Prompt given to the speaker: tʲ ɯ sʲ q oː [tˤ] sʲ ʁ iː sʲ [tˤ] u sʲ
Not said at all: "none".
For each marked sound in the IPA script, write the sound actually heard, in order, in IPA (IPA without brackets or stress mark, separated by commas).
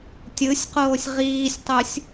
none, tˤ